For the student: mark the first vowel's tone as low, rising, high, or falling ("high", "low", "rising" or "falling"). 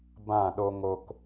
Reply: falling